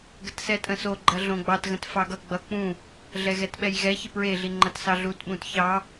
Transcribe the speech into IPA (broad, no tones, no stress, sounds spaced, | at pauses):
ɡ ə t s ɛ tʼ ə̃ s o ɡ͡ǃ ɐ ɮ õ ɡ͡b ɑ t ɣ ə̃ t f ɑ ɡ ʌ ɡ͡b ʌ k͡p ũ | ɮ ɛ ɣ ɛ t ɓ ɛ j ɣ ɛ ç ɪ p ɹ e ɮ i ŋ͡ǃ ɐ t s ɑ ɮ u t ɓ ũ t ç ɑ